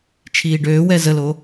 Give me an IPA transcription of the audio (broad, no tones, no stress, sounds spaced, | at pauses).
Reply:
t͡ʃʰ iː ɖ øː w ɛ z ə l o